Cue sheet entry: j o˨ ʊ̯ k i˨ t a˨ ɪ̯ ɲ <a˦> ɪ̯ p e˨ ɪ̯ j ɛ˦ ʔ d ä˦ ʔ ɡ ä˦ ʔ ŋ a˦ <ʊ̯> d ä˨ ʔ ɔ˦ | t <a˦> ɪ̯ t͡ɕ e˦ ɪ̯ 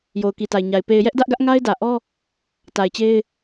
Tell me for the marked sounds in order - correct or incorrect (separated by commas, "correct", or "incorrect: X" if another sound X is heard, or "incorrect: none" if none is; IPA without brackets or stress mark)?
incorrect: a˨, incorrect: ɪ̯, incorrect: a˨